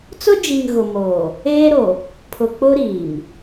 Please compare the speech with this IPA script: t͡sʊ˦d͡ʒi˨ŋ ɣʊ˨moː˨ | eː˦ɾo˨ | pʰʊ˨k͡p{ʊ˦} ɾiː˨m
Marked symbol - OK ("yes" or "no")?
yes